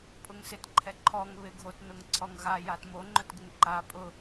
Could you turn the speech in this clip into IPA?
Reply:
pʼ ʊ ŋ s ɪ t ǃʰ ɛ ǃʰ ɔ ŋ β ɪ ɡʱ o t n ʊ ŋ ǀʰ ɔ ŋ ɣ a j a t m o ŋ͡ǃ ʊ t ɡ ɪ ŋ ǃ a pʼ ʊ

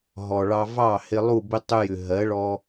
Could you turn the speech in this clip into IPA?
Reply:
ɦ ɔ˨ ɭ ɑ˧ v ɑ˦˨ h ɪ˧ lˠ u˦˨ b ɪ˦ tˤ ʏ˧ j ʏ˨ ɦ ɜ˨˦ ɭ ɔ˧

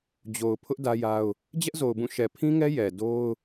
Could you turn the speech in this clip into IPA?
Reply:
d͡ʑ o˨ ʊ̯ pʰ ʊ˦ ʔ d ä˦ j a˦ ʊ̯ | d͡ʑ ɛ˦ ʔ z o˨ ʊ̯ b ũ˦˨ ʃ ɛ˨ pʰ ĩ˦ ŋ ɛ˦ j ɛ˨ d o˦ ʊ̯

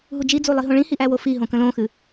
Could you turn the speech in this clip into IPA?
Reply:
ɦ u d͡ʒ i d͡z u lˠ i ɦ õ ɭ ĩ h i ʔ æ w o f i ɦ õ k ə̃ l õ x ɨ

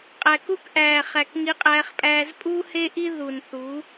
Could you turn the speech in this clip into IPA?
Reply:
qʼ æ˨ k u˦ k ʔ æː˨ χ æ˨ k ŋ i˦ qʼ æː˦ χ pʼ æː˦ z pʼ uː˦ h e˦ ʔ i˦ ð u˨ n θ u˨˦

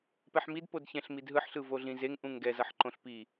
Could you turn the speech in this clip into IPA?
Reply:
p ɛ ħ m i d p o d ç ɛ̃ ɬ m i d ɦ ɯ ħ ɬ ɯ v o ɮ ĩ z e ŋ ʔ ũ ŋ ɡ ɛ z ʌ ħ ǃ õ ɬ p i

